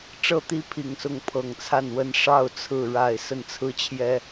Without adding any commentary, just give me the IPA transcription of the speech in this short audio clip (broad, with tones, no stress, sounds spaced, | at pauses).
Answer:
ʈ͡ʂ ɤ˥˨ t̪ i˥˨ pʰ i˨˩ ŋ s ʊ˨˦ ŋ pʰ ɤ˨˩ ŋ t͡sʰ a˥˨ n w ə˥˨ n ʂ ɑ˥˨ ʊ̯ t͡sʰ ɹ̩˥˨ ɻ a˥˨ ɪ̯ s ə˥˨ n t͡sʰ ɹ̩˦ t͡ɕʰ j ɛ˦